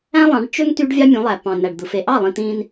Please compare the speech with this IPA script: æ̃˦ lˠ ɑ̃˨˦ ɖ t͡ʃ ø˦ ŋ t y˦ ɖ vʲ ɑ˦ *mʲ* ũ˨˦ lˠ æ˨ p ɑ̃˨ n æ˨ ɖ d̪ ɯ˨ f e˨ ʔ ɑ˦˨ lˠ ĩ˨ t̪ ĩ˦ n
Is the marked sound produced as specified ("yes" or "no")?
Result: yes